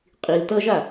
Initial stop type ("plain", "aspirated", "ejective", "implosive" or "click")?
ejective